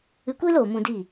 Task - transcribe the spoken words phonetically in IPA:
ɨ˧ kʷ iː˦ l oː˨ m ũ˧ d i˦˨

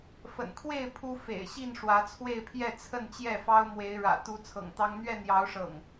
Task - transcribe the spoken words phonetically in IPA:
f ə̰˨˩ n kʰ w e˥˨ ɪ̯ pʰ u˦ f ḛ˨˩ ɪ̯ ɕ i˥˨ n ʂ w ä˨˦ t͡sʰ w e˥˨ ɪ̯ pʰ j ɛ˥˨ t͡sʰ ə˥˨ n t͡ɕ j ɛ˥˨ f ɑ˦ ʊ̯ m w e˨˦ ɪ̯ ɻ ä̰˨˩ t̪ u˨˦ t͡sʰ ɤ̰˨˩ ŋ t̪ ɑ˦ ŋ n̪ ɥ ɛ˥˨ n̪ j ɑ˨˦ ʊ̯ ʂ ɤ̰˨˩ ŋ

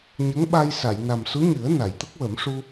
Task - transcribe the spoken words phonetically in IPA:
ɲ ə˧˥ ŋ ɓ a˧ j s a˨˩˨ j n a˨˩ m s u˧˥ ɲ ɨ˨˩˦ ə̯ n a˨˩˨ j t̪ ə˦˥ k̚ w ə˨˩˦ m ʂ u˧

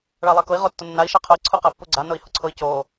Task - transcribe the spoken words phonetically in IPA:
ɭ a lˠ a k ʊ i̯ ʁ o tː ʊ nː a i̯ ʃ a qʰ ʊ i̯ ǀʰ u q a pː u ɡ͡ǀ a n ʊ i̯ h ʊ ǀʰ ʊ i̯ c o

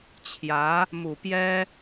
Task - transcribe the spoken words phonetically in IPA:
t͡ɕʰ j ä˧˥ | m u˨˩ p j ɛ˥

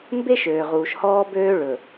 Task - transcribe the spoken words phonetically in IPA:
m b e˦ ʃ øː˨ ʁ uː˨ ʃ h ɔː˦ b øː˦ ɭ ɵ˨

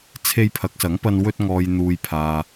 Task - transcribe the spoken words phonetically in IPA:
t͡sʰ e˧ j pʰ ɐ˨˥ k̚ s ɐ˨˥ ŋ p ɐ˧ n w ɵ˧ t̚ ŋ ɔː˨ j n̪ uː˨ j pʰ aː˨

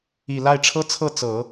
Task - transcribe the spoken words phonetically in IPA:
i˨˩ l a˥˩ ɪ̯ ʈ͡ʂʰ ɤ˥ t͡sʰ ɤ˥˩ t͡s ɤ˨˩˦

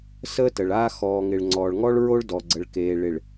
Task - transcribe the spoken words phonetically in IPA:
s əː˦ t ə˨ ɭ aː˦ x ɔː˨ ŋ ɪ˨ ɭ ŋ͡ǀ ɔː˨ ɭ ŋ ɔ˦ ɭ ɹ o˦ ɭ d ɔ˨ ɡ͡ǀ ə˨ ɭ k eː˨ ɭ ɪ˨ ɭ

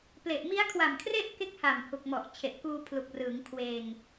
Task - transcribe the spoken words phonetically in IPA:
p l e˨˩ ʔ m i˦˥ a̯ kʰ w a˨˩ m kʰ r e˥˩ ʔ k e˥˩ k̚ h a˨˩ m h u˨˩ k̚ m ɔ˨˩ ʔ t͡ɕʰ e˨˩ ʔ k uː˧ pʰ l u˨˩ k̚ r ɯː˩˦ ŋ kʰ w eː˧ ŋ

